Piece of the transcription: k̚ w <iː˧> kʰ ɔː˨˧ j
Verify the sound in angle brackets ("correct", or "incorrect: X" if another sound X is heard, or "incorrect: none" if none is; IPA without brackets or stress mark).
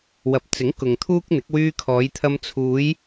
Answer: incorrect: yː˧